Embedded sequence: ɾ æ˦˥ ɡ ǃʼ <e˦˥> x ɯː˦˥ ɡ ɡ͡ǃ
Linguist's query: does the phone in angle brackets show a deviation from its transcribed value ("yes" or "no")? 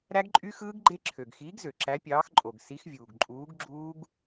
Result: yes